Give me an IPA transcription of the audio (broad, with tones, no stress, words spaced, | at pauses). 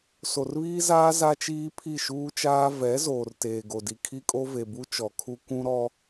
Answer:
so˨rβiː˦zaː˦ za˦t͡ʃiː˦ pʰi˦˨ʃuː˦t͡ʃaː˦ vɛ˨˦ zoː˨rteː˨ɡo˨di˨ kʰi˦kʼo˦ ve˨bu˦ t͡ʃɔ˨kʰu˦ kʷũ˦ɾɔ˦